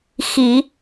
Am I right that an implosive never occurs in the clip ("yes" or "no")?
yes